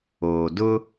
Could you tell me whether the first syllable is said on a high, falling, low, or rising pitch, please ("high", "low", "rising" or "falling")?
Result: low